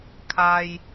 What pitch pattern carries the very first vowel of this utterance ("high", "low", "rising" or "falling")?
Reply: low